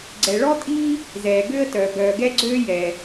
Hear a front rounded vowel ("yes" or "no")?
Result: yes